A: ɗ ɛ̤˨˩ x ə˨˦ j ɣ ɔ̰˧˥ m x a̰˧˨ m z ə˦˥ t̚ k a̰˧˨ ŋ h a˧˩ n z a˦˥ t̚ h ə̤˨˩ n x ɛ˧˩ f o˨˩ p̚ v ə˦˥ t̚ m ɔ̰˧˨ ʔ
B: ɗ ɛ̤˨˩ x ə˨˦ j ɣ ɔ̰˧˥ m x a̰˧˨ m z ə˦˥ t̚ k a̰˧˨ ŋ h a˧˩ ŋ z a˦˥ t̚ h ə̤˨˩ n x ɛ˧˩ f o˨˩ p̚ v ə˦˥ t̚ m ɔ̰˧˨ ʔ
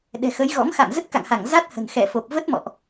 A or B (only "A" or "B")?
B